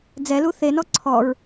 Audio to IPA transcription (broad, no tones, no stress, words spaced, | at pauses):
d͡zɛlu θenɔ ǀʰɔɹ